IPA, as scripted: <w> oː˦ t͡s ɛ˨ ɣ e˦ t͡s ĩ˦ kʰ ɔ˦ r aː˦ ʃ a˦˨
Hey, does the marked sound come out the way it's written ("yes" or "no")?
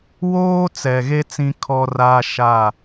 yes